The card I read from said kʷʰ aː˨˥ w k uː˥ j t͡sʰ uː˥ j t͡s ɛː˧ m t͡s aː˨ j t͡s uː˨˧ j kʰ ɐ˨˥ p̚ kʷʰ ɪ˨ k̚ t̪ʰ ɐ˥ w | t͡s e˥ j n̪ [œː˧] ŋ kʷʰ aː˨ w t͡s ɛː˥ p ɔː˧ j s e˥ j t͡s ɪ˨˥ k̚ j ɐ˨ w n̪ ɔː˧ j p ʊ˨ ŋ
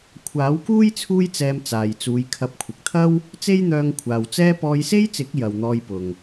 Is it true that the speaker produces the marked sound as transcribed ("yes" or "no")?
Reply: yes